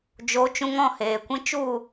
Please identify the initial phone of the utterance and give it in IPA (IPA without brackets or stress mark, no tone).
d͡ʒ